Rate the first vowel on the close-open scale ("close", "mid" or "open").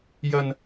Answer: open